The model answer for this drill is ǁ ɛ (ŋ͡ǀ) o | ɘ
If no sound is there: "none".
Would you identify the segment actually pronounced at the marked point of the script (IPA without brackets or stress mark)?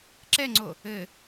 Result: ŋ͡ǀ